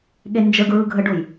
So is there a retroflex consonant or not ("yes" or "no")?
yes